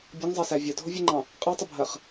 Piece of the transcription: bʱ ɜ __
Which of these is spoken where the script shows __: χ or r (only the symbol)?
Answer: χ